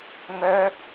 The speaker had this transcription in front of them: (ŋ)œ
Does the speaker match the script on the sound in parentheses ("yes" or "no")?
yes